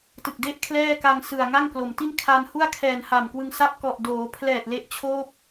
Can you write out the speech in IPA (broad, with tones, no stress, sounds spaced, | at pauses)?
t ɯ˨˩ k̚ d e˥˩ ʔ kʰ l ɛː˥˩ k a˧ ŋ s ɯ˨˩ a̯ ŋ a˥˩ ŋ k l o˩˦ m t i˥˩ n kʰ a˧ n h u˥˩ a̯ kʰ ɛː˨˩ n h a˨˩ m k w ɯ˧ ŋ s a˦˥ p̚ k ɔ˨˩ ʔ d oː˩˦ pʰ l ɛː˨˩ t̚ l e˦˥ ʔ t͡ɕʰ oː˥˩ p̚